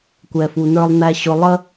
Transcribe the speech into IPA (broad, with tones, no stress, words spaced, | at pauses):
kʷɛ˨fu˨nə˞˧lˠ næ˧ɕʊ˧ lˠə˦